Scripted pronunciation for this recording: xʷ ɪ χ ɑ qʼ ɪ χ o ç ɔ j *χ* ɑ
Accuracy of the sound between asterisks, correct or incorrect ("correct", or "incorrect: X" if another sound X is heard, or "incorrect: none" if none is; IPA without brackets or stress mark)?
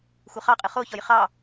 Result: correct